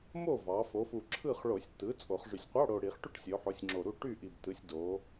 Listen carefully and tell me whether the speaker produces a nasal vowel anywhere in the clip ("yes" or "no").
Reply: no